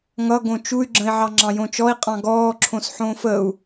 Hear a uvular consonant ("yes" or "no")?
yes